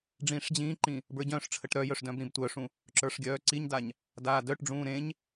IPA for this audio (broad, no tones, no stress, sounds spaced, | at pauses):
ɖ͡ʐ ĩː ʂ d͡ʑ ĩː ǃ ĩ | b ə˞ ɟ œ̃ː ʂ ʈ͡ʂʰ ə ʈ ɾ œ j œ ʂ d œ̃ b ɾ ĩ b tʷ œ ʂ ũ | ǁ ə˞ ʂ ɡʲ œː ǀ i ɲ d a ɲ | d aː d œ ʈ ɖ͡ʐ ũː ɾ ẽ ɲ